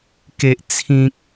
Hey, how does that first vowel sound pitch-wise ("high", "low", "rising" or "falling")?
high